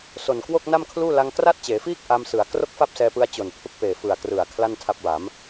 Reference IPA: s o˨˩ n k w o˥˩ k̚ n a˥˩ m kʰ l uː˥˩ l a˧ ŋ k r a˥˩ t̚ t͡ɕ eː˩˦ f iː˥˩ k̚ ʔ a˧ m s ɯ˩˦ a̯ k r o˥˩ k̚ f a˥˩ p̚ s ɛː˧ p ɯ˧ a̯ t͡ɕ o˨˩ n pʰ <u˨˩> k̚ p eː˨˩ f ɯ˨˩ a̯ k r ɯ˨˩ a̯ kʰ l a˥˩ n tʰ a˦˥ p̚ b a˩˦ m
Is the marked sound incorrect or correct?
incorrect: u˦˥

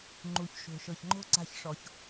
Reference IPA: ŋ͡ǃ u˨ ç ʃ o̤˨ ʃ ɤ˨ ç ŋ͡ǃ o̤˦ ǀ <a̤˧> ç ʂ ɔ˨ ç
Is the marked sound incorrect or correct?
correct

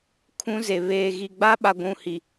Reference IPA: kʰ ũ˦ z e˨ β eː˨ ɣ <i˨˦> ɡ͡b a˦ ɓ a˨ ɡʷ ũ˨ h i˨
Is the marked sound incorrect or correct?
incorrect: i˨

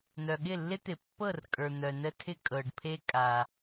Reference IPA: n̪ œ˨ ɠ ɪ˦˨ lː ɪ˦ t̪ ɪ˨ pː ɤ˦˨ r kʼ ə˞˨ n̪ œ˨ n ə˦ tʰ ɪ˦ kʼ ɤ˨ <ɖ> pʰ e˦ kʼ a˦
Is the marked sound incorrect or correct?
correct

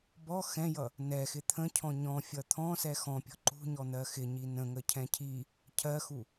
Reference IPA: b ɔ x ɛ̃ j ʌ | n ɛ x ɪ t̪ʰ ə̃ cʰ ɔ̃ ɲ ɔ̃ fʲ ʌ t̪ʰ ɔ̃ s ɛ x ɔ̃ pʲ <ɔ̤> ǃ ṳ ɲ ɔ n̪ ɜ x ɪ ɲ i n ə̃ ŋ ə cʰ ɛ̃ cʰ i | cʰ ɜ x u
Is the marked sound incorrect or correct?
correct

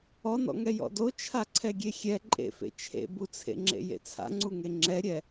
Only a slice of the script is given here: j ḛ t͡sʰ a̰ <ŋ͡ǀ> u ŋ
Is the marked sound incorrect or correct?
correct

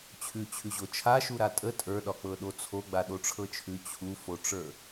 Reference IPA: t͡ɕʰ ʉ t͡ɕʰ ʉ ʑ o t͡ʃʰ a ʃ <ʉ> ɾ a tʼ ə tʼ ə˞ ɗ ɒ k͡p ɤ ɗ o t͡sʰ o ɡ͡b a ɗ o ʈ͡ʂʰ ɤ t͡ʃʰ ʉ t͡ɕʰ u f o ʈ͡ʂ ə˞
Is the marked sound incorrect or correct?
incorrect: u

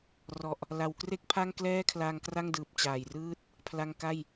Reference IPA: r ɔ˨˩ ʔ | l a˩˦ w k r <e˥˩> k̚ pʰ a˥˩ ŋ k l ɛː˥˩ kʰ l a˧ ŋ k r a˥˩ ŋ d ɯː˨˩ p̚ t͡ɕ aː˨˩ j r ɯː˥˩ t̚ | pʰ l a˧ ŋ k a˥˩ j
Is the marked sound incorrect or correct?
correct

